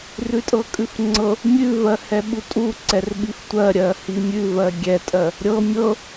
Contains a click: yes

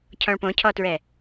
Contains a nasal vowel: yes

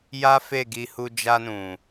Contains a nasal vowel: yes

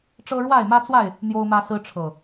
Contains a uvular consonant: no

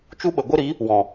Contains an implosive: yes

